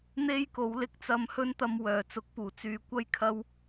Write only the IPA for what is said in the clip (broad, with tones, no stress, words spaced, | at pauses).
n̪e˥jko˨˥w lɪ˧k̚ t͡sɐ˧mhɵ˥nt̪ɐ˧m wœː˨˩t͡sʊ˨˥k̚puː˨˩ t͡syː˨kʷɐ˥jkʰɐ˥w